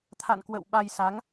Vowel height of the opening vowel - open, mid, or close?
open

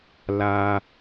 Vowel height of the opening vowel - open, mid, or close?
open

